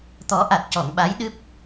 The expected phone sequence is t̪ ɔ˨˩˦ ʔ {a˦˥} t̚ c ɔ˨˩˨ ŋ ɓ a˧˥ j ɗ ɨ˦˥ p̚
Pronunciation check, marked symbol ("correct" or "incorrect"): incorrect